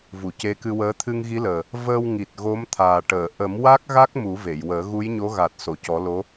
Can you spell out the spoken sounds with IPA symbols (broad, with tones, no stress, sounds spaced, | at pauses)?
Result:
v u˨˩˨ c e˧˥ k ɨ˧ w əː˧˥ t̪ʰ ɨ˧ ŋ ɣ i˧˥ l əː˨˩ | v əː˧ w ŋ i˨˩ t̚ ɣ o˧˥ m t̪ʰ aː˨˩ ʈ əː˨˩˨ ʔ ə˨˩˦ m w a˦˥ k̚ ɣ a˦˥ k̚ m u˨˩˦ v e˨˩˨ j w əː˨˩˦ ɣ u˧˥ j ɲ o˧˥ ɣ a˨˩ t̚ s o˨˩˨ c ɔ˨˩˦ l o˧˥